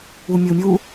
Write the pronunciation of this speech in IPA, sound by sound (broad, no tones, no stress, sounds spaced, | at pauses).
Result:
u mʲ u mʲ u